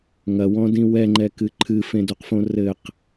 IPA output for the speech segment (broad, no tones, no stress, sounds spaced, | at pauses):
ŋ ɐ w ɔ̃ d ĩ w ɛ ŋ͡ǃ ɛ k ɨ ǃʰ ɨ f ẽ d u q f õ r ɘ q